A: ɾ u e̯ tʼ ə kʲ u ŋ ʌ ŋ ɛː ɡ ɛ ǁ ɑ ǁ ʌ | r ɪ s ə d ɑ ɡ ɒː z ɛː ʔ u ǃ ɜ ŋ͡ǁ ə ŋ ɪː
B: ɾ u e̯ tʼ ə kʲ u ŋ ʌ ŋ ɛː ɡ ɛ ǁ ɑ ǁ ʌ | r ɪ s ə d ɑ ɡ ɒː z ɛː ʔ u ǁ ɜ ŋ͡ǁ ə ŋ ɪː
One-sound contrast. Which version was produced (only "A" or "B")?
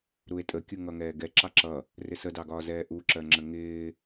B